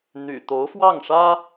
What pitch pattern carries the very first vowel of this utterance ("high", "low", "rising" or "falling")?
low